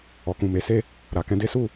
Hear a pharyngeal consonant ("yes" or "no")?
no